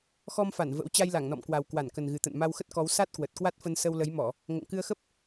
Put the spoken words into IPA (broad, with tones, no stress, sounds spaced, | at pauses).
x ɔ˧ m f a˧˩ n v ə̰˧˥ w t͡ɕ a˧ j l a˧˩ ŋ n ɔ̰˧˨ m k w a˨˩ w k w a˧˩ n k ə˨˩ n ɣ ɨ˨˩ t̪ ə̰˧˨ n m a˧ w x ə˦˥ t̚ k ɔ˨˦ w s a˦˥ t̚ k w ə˨˩ t̚ k w a˦˥ t̚ f ə˧ n s ə˧ w l ə˨˦ j m ɔ˧˩˨ | ŋ o̰˧˨ ŋ k ɨ˧ ə̯ x ə˦˥ p̚